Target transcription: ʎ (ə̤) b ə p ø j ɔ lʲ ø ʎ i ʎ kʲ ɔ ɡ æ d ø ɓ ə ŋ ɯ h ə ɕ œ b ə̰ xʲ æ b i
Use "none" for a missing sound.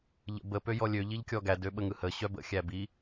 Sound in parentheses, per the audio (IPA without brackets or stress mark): ə̰